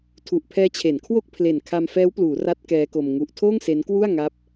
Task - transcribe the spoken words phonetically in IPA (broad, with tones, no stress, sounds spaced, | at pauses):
tʰ u˨˩ ʔ pʰ ɛː˦˥ t͡ɕʰ e˩˦ n kʰ w o˥˩ k̚ pʰ l e˨˩ n kʰ a˧ m f ɛː˦˥ w p l uː˩˦ r a˦˥ t̚ k ɛː˦˥ k o˧ m ŋ u˦˥ ʔ tʰ oː˥˩ ŋ s e˦˥ n k w u˥˩ a̯ ŋ a˦˥ p̚